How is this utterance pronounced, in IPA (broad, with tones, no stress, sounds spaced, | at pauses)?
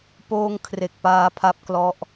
p oː˧ ŋ kʰ r e˨˩ k̚ p aː˧ pʰ a˦˥ p̚ k l ɔ˦˥ ʔ